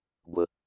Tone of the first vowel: low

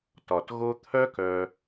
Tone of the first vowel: low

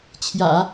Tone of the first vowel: low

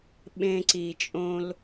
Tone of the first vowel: low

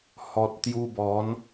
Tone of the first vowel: low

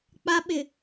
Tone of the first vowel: high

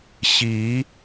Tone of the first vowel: rising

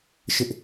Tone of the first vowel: high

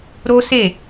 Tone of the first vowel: high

